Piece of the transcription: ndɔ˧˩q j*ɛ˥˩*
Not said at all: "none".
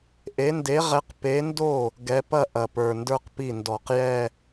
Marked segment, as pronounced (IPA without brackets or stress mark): ɛ˥˧